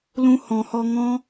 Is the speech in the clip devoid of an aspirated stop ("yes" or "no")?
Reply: yes